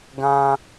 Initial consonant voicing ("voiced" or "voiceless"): voiced